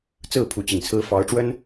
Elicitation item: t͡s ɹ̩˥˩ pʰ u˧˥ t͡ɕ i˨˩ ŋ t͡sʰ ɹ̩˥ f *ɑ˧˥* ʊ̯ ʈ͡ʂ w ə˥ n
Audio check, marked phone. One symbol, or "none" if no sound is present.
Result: ɑ˧˥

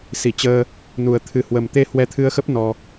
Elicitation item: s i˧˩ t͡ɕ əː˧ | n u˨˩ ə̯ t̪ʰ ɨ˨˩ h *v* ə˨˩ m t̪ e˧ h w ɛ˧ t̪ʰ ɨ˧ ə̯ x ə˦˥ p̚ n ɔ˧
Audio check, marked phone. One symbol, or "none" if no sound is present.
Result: w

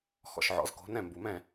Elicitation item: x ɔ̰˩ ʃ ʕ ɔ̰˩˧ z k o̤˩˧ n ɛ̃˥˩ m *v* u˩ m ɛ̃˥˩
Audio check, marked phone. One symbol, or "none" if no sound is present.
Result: b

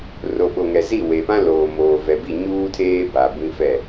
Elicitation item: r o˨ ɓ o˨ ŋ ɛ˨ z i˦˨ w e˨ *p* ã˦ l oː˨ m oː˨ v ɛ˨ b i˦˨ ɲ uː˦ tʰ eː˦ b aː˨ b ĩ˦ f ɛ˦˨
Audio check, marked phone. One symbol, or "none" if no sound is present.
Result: p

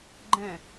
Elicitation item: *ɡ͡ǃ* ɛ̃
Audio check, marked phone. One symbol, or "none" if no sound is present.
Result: ɡ͡ǃ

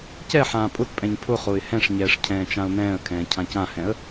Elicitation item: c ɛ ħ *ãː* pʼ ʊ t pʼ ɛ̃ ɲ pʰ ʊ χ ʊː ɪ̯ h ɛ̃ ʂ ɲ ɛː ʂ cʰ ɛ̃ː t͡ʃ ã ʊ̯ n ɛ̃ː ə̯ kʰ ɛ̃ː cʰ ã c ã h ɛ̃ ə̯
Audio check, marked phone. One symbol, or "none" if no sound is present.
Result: ãː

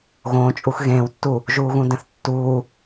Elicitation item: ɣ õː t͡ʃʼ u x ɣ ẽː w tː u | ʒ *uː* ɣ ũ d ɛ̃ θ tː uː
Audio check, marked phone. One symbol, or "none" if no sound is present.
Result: uː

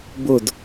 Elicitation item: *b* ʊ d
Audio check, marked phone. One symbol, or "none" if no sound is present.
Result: b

